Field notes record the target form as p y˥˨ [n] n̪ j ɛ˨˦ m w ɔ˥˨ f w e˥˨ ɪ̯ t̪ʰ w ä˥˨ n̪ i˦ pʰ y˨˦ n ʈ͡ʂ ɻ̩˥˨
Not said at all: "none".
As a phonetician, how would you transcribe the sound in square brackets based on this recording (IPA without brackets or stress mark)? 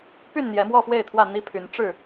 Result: n